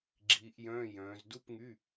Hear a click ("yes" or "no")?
yes